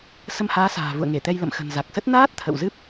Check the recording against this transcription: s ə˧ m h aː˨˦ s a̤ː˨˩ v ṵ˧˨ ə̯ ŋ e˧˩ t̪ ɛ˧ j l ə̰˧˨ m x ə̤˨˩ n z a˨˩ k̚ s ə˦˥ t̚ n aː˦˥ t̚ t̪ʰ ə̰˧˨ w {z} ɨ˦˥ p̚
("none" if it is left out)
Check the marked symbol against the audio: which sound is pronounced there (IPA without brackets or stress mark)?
z